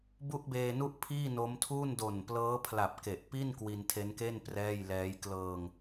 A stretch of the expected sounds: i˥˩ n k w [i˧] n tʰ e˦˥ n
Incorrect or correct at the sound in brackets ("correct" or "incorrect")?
correct